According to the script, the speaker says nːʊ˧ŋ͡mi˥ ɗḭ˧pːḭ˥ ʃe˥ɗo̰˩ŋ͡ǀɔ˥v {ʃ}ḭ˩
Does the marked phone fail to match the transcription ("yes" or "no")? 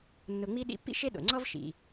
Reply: no